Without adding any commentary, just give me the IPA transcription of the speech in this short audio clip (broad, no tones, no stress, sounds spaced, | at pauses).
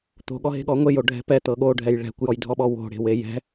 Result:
t̪ o̤ ɠ ɔ ɦ e̤ ɠ ɔ ŋʷ e j o ɖʱ ɛ̤ p ɛ t̪ ɤ ɠ o ɖʱ ɛ j ɭ ɛ̤ kʷ j ɔ j dʱ ɔ ɓ ɔ w o̤ ɽ e̤ w e j ɛ̤